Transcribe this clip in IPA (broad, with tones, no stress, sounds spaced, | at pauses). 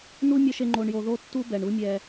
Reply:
n u˥ mʲ ʌ˥ ʃ e˥ ŋ͡ǃ o˧ ɳ j o˧ ð o˥ tː u˥ b ɛ˩ ɳ u˥ mʲ ɛ˧